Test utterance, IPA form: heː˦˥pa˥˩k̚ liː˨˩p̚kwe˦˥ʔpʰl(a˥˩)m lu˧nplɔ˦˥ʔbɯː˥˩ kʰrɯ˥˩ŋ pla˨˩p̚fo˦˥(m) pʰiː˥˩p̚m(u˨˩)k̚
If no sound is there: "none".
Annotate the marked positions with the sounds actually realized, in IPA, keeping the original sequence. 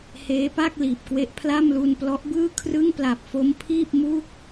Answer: a˥˩, m, u˥˩

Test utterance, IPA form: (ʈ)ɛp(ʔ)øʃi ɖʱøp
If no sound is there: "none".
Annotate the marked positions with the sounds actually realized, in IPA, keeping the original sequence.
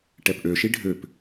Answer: ʈ, ʔ

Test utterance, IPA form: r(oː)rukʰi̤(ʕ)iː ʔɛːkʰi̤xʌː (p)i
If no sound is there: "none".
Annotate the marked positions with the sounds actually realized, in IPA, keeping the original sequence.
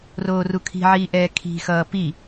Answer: oː, ʕ, p

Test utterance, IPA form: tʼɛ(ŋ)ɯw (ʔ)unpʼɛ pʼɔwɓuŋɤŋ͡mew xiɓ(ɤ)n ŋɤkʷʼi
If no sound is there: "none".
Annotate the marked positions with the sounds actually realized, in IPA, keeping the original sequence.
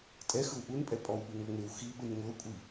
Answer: x, ʔ, ɯ

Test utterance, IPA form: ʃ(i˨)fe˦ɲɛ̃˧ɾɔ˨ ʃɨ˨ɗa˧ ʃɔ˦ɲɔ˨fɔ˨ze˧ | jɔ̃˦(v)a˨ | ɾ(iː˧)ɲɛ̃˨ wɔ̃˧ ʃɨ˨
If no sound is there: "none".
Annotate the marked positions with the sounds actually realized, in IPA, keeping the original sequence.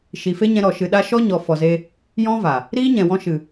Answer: i˨, v, iː˦

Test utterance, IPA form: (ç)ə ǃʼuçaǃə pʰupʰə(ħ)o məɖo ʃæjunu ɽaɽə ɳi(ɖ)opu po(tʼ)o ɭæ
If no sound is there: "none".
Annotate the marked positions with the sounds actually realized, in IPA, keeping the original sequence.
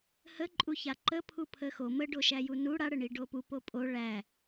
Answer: h, x, ɖ, pʼ

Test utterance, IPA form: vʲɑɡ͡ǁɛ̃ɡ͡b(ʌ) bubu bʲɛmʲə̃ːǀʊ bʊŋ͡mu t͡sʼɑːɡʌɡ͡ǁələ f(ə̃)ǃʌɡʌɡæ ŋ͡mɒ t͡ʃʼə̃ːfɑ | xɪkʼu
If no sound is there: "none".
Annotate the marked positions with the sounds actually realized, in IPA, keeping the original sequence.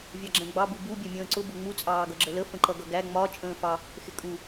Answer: ɑ, ə̃

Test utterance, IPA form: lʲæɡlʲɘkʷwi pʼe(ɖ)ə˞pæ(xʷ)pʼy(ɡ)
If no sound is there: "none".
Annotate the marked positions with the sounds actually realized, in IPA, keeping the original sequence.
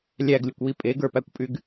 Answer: ɡ, kʷ, ɡ

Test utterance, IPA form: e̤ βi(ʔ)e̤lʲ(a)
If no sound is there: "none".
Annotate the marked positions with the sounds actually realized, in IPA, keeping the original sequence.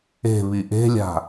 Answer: ʔ, a̤

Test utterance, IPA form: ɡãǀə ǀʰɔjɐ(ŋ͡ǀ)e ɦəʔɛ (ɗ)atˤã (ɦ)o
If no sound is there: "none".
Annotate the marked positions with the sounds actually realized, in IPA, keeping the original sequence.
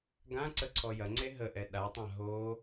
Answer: ŋ͡ǀ, ɗ, ɦ

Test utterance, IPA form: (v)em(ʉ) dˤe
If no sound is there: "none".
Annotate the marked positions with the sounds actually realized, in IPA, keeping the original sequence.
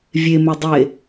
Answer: vʲ, ʉ

